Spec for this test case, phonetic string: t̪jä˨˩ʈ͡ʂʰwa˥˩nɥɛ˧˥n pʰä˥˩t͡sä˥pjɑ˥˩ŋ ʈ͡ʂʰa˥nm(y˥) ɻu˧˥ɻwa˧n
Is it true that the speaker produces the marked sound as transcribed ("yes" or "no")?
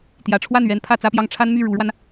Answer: no